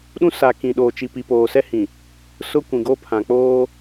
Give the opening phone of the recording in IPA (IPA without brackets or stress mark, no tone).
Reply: ɗ